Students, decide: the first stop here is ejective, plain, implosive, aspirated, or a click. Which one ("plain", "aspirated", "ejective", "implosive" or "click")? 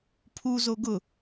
aspirated